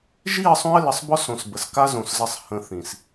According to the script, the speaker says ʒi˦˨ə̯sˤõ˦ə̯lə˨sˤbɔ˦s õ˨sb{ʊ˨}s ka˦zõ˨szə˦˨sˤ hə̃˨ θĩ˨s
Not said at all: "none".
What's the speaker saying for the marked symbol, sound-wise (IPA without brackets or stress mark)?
ə˨